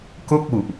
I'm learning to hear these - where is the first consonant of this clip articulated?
velum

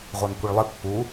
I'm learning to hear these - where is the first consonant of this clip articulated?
uvula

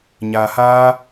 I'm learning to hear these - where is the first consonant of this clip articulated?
palate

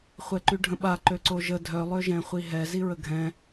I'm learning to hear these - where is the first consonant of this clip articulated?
uvula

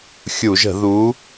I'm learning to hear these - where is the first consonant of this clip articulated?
velum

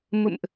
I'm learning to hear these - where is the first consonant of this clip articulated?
lips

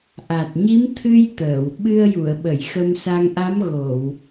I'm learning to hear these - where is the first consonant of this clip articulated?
throat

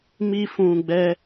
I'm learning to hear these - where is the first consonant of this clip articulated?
lips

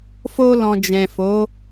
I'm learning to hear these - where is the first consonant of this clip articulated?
lips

